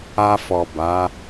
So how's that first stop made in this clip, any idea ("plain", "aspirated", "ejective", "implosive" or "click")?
plain